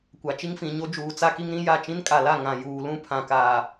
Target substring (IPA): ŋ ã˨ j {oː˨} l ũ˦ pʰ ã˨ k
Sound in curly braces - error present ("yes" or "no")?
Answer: yes